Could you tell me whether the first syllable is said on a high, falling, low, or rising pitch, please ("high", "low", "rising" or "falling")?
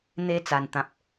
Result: high